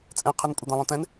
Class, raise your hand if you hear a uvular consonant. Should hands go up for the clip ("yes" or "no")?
yes